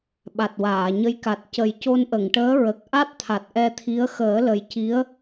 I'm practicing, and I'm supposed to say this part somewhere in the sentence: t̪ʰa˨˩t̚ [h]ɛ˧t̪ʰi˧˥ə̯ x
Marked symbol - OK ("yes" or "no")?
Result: no